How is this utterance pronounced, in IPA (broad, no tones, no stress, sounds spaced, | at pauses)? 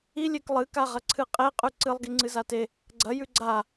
i lʲ e k lˠ ɨ k a ʁ ɐ ǀʰ ɨ qʼ e qʼ ʉ ǀ ɨ lˠ ɡ i ŋ͡ǀ ɨ z a t e | ɡ͡ǀ ɐ j ʉ ɡ͡ǀ a